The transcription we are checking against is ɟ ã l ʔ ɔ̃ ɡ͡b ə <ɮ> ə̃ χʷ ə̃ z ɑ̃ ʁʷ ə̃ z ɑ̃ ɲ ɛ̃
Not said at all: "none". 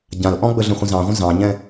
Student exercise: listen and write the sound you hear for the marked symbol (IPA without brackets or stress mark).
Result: ɮ